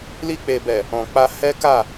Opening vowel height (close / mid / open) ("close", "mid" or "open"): close